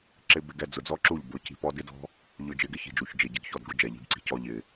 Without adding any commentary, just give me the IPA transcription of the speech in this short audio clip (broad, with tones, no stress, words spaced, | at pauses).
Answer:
ǁɪ˧ bɪ˧ɡɛ˧ d͡zʊ˨d͡zɔ˦ǁu˦˨ʎ bʊ˨˦ci̤˧pɔ˦ dɪ˦dɔ̤˦ | ʎʊ˧ d͡ʒɪ˧ɡɪ˦ çi̤˨d͡ʒu˨ç d͡ʒɪ˨ɟɪ˧ɡçɔ˦˨d ɡʊ˦d͡ʒɛ˨ʎi̤˧bǀi̤˧ cɔ˧ ʎɪ˨